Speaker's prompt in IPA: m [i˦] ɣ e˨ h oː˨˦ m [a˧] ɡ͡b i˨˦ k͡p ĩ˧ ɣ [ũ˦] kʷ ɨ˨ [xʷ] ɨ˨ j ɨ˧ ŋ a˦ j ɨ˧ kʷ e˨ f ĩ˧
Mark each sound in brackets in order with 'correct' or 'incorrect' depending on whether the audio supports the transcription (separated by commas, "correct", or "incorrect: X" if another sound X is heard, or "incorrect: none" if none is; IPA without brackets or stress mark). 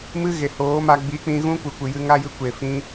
incorrect: ɨ˦, correct, correct, incorrect: kʷ